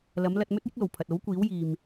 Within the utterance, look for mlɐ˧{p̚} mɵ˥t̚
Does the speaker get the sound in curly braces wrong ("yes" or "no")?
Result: yes